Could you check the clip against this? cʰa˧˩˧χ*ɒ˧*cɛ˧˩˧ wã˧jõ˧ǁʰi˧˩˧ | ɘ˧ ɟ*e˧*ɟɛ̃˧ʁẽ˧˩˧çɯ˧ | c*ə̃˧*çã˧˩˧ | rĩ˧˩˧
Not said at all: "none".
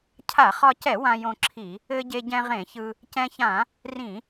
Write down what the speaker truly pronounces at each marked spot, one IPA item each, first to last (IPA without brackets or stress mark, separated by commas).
ɒ˧, e˧, ɛ̃˧